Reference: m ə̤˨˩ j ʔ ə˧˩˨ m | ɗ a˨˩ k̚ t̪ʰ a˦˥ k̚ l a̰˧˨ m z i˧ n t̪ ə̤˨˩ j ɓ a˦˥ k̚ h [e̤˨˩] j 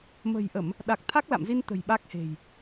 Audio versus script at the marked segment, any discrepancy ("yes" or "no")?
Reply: no